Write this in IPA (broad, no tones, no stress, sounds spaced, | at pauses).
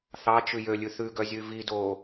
θ ɑ t͡ʃ ʉ j ø lʲ ʉ θ ʉ ɡ œ zʲ ʉ v i d oː